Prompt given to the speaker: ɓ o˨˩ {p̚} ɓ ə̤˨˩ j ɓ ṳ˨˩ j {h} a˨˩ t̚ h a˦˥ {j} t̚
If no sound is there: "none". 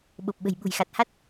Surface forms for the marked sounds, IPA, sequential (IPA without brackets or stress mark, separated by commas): p̚, x, none